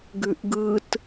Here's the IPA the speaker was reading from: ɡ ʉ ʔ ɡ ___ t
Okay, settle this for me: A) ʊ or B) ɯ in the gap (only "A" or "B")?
B